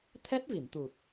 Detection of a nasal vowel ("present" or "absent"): absent